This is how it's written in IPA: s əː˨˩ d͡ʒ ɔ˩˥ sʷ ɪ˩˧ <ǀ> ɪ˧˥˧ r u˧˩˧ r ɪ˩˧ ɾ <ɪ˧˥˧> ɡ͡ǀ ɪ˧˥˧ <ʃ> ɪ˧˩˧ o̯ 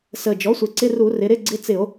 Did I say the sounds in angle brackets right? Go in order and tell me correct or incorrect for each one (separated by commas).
correct, correct, incorrect